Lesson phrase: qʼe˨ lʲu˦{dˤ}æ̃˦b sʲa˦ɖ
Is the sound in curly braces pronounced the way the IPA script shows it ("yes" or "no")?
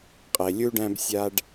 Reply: no